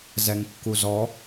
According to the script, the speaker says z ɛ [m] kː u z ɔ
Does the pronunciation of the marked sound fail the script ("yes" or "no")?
yes